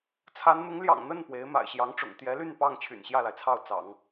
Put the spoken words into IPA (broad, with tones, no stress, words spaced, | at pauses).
t͡sʰa˧˥nn̪ʊ˧˥ŋ ljɑ̰˨˩ŋn̪ə˥˩n pwe˧˥ɪ̯ma̰˨˩ɪ̯ ɕjɑ˧˥ŋʈ͡ʂʊ̰˨˩ŋ t̪jɛ˧˥ly˥˧n pɑ˥˩ŋ t͡ɕʰy̰˨˩nɕjä˥˩la˩ɪ̯t͡sʰɑ˥˩ʊ̯ t͡sɑ̰˨˩˦ŋ